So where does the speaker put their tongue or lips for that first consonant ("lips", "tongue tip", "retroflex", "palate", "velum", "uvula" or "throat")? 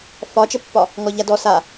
lips